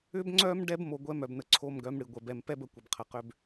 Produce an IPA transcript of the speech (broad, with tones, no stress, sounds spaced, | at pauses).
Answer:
ʏ˦ b ŋ͡ǀ œ˦ m ɖ ɛ˦ b m o˨ ɡʷ ɛ˦ m œ˨ b n ə˨ ǀʰ o˦ m ɡ œ˨˦ m ɽ ɨ˨ ɡʷ ɛ˨ b ɛ˨ m p ɛ˦ b ə˨ kʷ ə˨ b qʰ ə˨ q ʏ˦ b